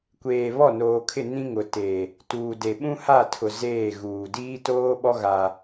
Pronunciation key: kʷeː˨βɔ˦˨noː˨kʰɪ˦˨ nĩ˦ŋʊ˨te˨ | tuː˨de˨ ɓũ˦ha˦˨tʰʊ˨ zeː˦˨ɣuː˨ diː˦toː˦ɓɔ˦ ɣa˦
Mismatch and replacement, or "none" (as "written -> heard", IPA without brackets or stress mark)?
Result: none